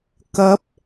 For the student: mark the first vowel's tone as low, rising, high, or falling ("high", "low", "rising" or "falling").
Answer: rising